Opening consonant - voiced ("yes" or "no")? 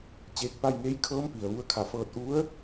no